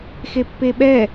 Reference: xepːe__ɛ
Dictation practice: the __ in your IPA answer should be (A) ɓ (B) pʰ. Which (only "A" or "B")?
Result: A